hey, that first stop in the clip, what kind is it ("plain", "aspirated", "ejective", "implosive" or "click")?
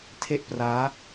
aspirated